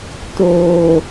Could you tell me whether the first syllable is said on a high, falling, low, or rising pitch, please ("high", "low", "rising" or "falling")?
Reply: low